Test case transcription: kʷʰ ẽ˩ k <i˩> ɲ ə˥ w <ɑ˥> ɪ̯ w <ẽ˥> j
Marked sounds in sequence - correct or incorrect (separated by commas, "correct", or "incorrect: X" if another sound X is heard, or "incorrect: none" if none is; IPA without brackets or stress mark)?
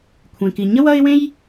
correct, incorrect: ʌ˥, correct